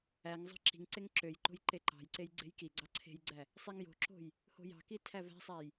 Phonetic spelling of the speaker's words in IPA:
æ ŋ zˤ ɑ̤ ǁ i̤ ŋ ǀ e ŋ ǁ ø j ǃ o̤ j ǃ e ǃ ɑ̤ j ǀ e j ɡ͡ǀ e̤ j k i ɡ͡ǀ ɑ ǀʰ e̤ j ɡ͡ǀ æ | sˤ i ŋ j o̤ ǁ o̤ j | h o̤ j ɑ̤ k i tʰ æ v æ̤ sˤ æ j

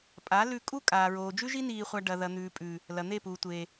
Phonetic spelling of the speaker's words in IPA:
pʼ a˨˦ l ʉ˧ kʼ u˦ kʼ aː˨ ɹ oː˨ d͡ʒ ʉ˦ ʒ i˦ n iː˧ χʷ a˧ ɖ ɐ˨ ð ɐ˨ n̪ ʉː˨ pʼ ʉː˨ | l ɐ˨ n̪ e˦˨ p uː˨ tʷ eː˨

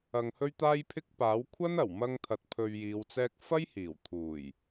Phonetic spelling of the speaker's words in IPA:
ɐ˧ ŋ h ɵ˥ ɥ t̪ aː˥ j pʰ ɪ˥ k̚ p aː˨˥ w kʷʰ ɐ˥ n ɐ˨˩ w m ɐ˧ ŋ t̪ʰ ɐ˨ t̚ pʰ ɵ˧ ɥ j iː˨˧ w t͡s ɛː˥ k̚ f ɐ˥ j h iː˨˩ w t̪ʰ uː˨˩ j

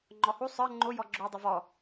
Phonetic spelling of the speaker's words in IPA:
ŋ͡ǃ ɔ h u sˤ ə˞ ŋ͡ǃ o j ɔ ɡ͡ǁ o dˤ ʊ v ɔ

